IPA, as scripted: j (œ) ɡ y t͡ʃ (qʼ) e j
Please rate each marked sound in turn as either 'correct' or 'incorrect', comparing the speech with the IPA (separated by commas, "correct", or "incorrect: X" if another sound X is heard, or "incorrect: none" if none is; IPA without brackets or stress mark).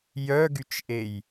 correct, incorrect: ʔ